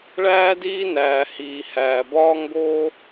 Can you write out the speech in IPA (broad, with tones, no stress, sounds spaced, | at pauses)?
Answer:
ɭ æː˥ d iː˥ n æː˩ h iː˩ h æː˩ b ɒː˥ ŋ ɡ oː˥